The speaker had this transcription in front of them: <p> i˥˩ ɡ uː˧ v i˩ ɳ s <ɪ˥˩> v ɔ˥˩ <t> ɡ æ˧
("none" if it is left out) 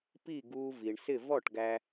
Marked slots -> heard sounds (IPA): p, ɪ˥˩, ʈ

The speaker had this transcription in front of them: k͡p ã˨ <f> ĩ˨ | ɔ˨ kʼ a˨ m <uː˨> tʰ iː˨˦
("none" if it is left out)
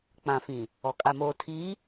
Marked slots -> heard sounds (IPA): f, oː˨

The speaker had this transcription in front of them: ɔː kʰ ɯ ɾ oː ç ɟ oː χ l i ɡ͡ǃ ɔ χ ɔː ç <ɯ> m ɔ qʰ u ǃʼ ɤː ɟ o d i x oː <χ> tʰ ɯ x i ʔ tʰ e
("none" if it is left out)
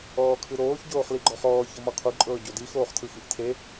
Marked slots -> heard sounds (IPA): ɤ, χ

